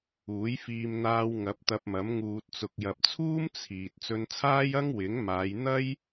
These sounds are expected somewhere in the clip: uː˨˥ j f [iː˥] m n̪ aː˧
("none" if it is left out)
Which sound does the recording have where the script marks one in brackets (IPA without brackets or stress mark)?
iː˧